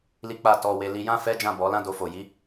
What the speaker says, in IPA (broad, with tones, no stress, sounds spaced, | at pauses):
l i˦ k͡p a˦˨ t ɔ˧ w e˧ l i˧ j ã˦ f ɛ˦ d͡ʒ ã˦˨ b ɔ˨˦ l ã˦ d o˧ f o˨ j i˨˦